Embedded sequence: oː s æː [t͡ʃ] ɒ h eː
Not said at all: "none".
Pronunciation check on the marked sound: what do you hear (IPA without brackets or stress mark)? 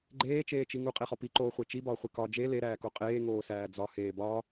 d͡z